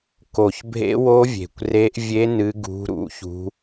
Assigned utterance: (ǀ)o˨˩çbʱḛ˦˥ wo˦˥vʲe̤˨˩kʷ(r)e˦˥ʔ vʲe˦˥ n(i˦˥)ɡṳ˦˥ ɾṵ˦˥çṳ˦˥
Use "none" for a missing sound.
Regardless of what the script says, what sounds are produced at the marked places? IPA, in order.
k, r, ɨ˦˥

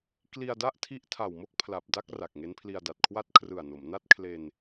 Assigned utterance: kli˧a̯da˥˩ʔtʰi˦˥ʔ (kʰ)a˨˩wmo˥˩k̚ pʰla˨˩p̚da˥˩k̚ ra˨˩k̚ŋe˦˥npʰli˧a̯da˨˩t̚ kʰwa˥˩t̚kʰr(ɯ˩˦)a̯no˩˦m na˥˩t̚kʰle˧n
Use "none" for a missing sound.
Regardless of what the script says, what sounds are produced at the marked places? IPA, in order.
tʰ, ɯ˨˩

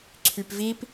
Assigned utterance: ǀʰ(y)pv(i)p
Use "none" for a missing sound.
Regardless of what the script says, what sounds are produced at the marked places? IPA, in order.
y, i

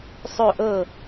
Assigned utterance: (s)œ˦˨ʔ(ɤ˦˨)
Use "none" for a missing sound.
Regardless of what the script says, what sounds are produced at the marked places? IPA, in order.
sˤ, ɤ˦˨

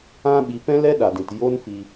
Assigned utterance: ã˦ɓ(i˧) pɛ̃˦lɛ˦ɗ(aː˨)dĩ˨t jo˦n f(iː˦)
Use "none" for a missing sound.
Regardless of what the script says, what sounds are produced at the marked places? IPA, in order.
i˧, a˨, iː˧

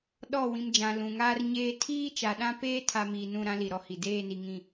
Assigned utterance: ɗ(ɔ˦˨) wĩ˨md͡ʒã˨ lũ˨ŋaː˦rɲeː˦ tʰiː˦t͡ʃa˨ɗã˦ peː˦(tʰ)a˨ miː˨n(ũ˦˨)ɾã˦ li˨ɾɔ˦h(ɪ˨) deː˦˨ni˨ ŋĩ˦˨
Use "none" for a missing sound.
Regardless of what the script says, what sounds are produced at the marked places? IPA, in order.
ɔ˦˨, tʰ, ũ˦˨, i˨

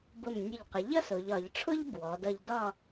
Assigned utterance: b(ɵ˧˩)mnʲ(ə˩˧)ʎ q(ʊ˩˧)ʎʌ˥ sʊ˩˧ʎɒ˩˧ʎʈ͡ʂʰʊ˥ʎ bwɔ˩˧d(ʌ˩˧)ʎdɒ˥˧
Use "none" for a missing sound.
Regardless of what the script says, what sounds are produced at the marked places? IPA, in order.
ʊ˧˩, ə˧˩, ə˩˧, ʌ˧

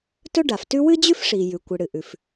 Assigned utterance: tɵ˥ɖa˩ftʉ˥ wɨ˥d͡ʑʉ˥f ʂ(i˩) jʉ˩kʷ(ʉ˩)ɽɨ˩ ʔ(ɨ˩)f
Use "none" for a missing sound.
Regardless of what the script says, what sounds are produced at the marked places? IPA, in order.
i˩, ɨ˩, ʉ˩

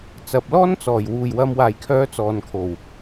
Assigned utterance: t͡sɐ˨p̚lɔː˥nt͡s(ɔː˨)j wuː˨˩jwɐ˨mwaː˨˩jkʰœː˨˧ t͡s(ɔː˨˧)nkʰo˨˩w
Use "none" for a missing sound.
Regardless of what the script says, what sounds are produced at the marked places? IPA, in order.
ɔː˨˩, ɔː˨

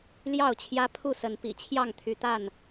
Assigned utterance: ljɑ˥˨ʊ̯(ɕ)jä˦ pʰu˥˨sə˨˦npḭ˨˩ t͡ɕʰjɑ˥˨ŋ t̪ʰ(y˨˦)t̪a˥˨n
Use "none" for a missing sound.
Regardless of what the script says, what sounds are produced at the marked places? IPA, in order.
t͡ɕʰ, y˨˦

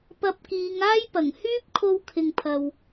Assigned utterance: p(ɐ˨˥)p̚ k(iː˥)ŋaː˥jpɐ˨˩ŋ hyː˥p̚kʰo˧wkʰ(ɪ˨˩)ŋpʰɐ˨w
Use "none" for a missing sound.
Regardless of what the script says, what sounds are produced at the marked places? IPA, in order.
ɐ˧, iː˨˧, ɪ˨

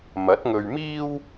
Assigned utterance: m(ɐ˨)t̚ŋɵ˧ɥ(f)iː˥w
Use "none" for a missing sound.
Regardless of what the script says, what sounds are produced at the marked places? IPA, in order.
ɐ˨˥, m

